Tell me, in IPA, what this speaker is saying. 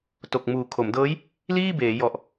t o˨˩ k̚ m uː˨˩ kʰ o˩˦ m d ɤː˦˥ j | l iː˥˩ b eː˩˦ j ɔ˨˩ ʔ

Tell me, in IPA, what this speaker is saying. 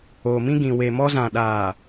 oː˨ m ĩ˦ ɡ ĩ˨ w e˨ m ɔ˦ z ã˨ ɗ aː˨

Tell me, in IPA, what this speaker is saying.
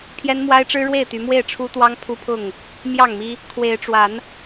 pʰ j ɛ˦ n m w a˦ ɪ̯ ʈ͡ʂ ɻ̩˦ ɻ w e˥˨ ɪ̯ t̪ y˨˦ m w e˥˨ ɪ̯ ʈ͡ʂʰ u˦ t̪ w ɑ˦ ŋ pʰ u˦ pʰ ʊ˥˨ ŋ | m j ɑ˥˨ ŋ m i˦ | kʰ w e˨˦ ɪ̯ ʈ͡ʂ w a˨˦ n

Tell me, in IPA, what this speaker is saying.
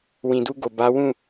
w ĩ˨ d u˧ ɡ o˨ b a˨˦ w ũ˦˨

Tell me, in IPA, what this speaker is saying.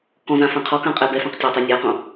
k ɔ̃ z ã f ã qʰ ɔ k ã qʼ ɛ b ɛ f ã q tʲ a tˤ ɛ nʲ a q õ

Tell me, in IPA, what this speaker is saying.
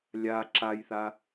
lʲ a ǁ a j θ a

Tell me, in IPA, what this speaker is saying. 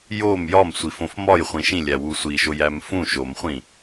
j o m j ɒ m sʷ i f õ f m ɒ j χʷ ĩ ʃ ĩ lʲ æ w u sʷ i ʃ o j æ m f ũ ʃ o m χʷ ĩ

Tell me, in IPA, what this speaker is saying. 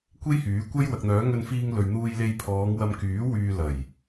kʷ e˥ j h yː˨˥ kʷ ɐ˥ j w ɐ˨ k̚ n̪ œː˨˥ ŋ ɵ˧ n f iː˧ ŋ l ɵ˨ ɥ n̪ uː˧ j l e˧ j pʰ ɔː˨˧ ŋ w ɐ˧ m k yː˨˥ w yː˧ l ɐ˨˩ j

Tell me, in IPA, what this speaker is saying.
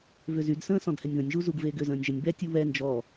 v ʏ z y d s ə̃ː s ɔ̃ d h ɛ nʲ ð ə̃ nʲ ʒ u z u ɡ v eː ɡ ʏ z ə̃ː nʲ ʒ ə nʲ b ɛ tʲ u β ɛ n d͡ʒ ɔ

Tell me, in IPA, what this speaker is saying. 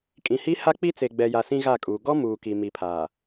kʼ ĩ˨ h i˦ h a˦ k͡p i˦ t͡s e˨ ɡ͡b ɛ˨ j a˨ s ĩ˦ ɣ a˦˨ kʼ uː˨ ɡ ɔ˦ m uː˨ k i˨ m i˨ pʰ aː˨

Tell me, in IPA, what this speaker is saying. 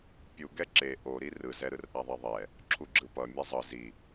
pʲ u ɡ ɛ ǁ e ʔ o ɾ i r ɯ z ɛ ɾ ɯ r ʔ a ðˤ e ðˤ ɛ | ǁʰ u ɡ͡ǁ ɯ p ʌ mʲ a zˤ ɯ z i

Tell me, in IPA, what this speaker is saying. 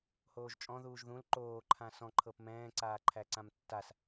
h oː ʒ t͡ʃʼ ɔ̃ ð uː ʒ ð ũ l ǃ oː ǃʰ ã s ɔ̃ ǃʰ ɤ p m ɛ̃ː ǀ aː ǃʰ æ ǀ ã m tː a s

